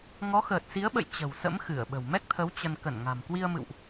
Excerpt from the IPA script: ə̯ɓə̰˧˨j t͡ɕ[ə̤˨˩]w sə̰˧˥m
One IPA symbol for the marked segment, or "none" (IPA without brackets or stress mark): ə̤˨˩